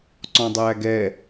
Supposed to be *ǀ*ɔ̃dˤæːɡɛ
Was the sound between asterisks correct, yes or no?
yes